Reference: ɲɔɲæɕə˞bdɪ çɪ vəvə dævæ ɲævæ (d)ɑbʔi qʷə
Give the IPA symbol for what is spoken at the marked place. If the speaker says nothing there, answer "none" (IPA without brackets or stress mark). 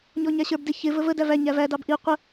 d